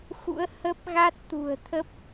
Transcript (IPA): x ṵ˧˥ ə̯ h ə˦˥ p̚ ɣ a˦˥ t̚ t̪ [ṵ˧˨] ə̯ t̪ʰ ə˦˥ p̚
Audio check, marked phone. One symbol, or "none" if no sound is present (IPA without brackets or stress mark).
ṳ˨˩